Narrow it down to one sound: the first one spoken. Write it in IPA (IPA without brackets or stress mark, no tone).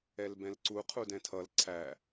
ɛ